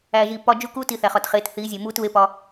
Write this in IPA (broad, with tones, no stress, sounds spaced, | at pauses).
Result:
æː˨ ʒ iː˨ p ɒ˦ d͡ʒ u˦ k uː˦ t i˨ θ æ˨ χ ɒ˨ t χ eː˨˦ t θ iː˨˦ zʲ e˨ m uː˦ t β e˦ p ɒ˦